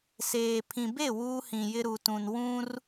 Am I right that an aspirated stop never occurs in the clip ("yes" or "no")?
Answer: no